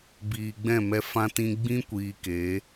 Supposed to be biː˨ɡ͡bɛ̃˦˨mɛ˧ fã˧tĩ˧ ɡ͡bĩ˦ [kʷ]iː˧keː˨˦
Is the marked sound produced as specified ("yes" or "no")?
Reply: yes